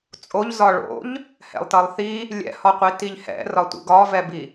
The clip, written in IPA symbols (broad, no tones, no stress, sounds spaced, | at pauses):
t͡sʼ o ʎ z ɒ ɭ o̰ ʎ | h ɛ̰ lˠ t ʌ lˠ θ i | lʲ ɛ̰ h ɒ qʷ i t i ʎ h ɛ̰ r ɒ tʷ ḭ ɡ ɒ v ɛ b i